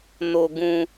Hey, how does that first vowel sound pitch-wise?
high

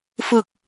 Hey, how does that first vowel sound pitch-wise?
low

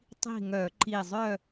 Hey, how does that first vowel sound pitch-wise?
falling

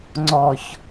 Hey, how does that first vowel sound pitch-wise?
low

